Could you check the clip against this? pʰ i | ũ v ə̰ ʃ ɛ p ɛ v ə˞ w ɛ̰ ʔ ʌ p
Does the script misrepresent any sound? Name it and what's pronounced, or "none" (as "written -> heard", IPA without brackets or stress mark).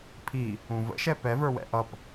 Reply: none